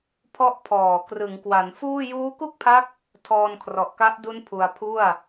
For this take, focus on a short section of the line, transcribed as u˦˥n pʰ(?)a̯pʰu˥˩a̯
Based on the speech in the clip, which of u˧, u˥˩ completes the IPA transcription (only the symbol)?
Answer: u˧